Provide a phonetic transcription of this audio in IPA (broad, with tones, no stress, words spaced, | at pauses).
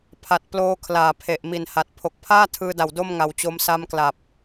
pʰa˨˩t̚ploː˦˥ kʰlaː˨˩pʰe˨˩ʔmi˨˩nha˨˩t̚ pʰo˨˩k̚pʰaː˥˩tʰɯː˧da˨˩w do˥˩mŋa˨˩wt͡ɕo˧m sa˧mkla˨˩p̚